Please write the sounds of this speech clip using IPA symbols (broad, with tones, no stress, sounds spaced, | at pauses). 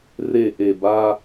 r e˨ ʔ e˨ b a˦